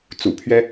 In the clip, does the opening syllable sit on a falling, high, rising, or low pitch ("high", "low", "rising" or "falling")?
low